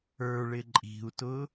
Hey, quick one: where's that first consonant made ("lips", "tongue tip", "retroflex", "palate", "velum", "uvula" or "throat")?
retroflex